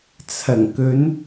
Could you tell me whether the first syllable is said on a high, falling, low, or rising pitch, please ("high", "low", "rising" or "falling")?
low